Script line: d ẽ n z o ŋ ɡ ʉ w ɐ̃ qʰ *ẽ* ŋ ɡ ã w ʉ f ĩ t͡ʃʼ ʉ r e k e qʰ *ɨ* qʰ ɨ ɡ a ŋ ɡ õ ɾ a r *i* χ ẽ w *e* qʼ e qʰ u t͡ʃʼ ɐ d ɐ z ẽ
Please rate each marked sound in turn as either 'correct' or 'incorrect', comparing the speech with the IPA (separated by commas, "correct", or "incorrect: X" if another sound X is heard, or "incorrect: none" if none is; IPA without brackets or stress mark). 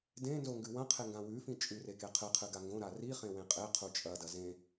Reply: incorrect: e, correct, correct, incorrect: ẽ